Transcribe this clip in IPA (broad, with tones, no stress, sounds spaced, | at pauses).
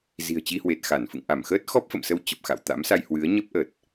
z i̤˨˩ ə̯ t͡ɕ i˧ h w e˨˩ t̚ x a˧˩ n f ɨ̰˧˨ ŋ ʔ a˧˩ m x əː˦˥ t̚ x ɔ˦˥ p̚ f ə̰˧˨ m s ə˧ w t͡ɕ ə˨˩ p̚ x a̰˧˨ w t̪ a̰˧˥ m s a˧ j h w ɨ˨˦ ə̯ ɲ ə˦˥ p̚ ʔ ə˨˩ t̚